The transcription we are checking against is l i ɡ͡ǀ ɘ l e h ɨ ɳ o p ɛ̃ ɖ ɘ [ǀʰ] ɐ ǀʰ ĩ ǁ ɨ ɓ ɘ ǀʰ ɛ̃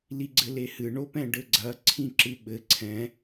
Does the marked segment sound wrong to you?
yes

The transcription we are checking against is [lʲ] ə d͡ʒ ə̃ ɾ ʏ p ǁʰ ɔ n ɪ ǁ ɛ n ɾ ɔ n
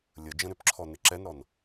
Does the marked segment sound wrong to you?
no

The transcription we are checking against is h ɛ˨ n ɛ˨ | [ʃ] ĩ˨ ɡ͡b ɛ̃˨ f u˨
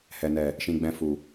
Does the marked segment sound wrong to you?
no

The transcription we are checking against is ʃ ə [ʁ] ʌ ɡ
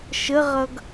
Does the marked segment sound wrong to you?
no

